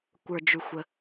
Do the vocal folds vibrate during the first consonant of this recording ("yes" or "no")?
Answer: no